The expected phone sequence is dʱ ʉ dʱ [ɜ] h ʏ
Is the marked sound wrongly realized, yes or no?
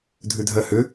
no